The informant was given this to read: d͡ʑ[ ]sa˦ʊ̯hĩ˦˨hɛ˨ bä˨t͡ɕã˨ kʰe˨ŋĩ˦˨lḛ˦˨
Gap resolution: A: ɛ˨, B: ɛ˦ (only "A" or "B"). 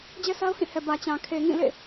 B